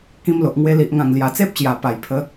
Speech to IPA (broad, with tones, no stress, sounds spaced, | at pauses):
k ĩ˧ m l o˨ ʔ ŋ w e˧ l i˨ ʔ ŋ ã˨˩ ŋ l j a˨˩ t͡s e˦ p̚ ɕ j a˨˩ p a˨˩ j pʰ ə˨˦